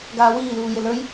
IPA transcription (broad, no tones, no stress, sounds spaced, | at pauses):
ɡ aː w iː l uː j e l ə˞ j